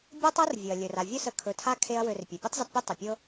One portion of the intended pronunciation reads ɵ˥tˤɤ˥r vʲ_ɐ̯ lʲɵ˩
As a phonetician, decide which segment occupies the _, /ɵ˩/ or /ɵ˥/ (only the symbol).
ɵ˩